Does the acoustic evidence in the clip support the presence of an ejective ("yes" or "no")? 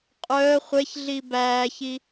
yes